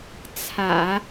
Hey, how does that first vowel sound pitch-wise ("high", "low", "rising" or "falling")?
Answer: low